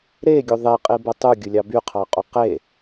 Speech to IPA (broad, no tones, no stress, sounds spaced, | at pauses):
ɾ e ɡʲ o ðˤ e qʼ i b o tˤ u ɡʲ ʊ lʲ ɑ b y qʰ ɑ qʼ u q e